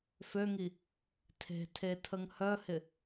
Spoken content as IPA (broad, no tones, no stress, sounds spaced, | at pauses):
f ø ŋ i | tʰ e̤ tʰ e tʰ ə ŋ h œ h ɪ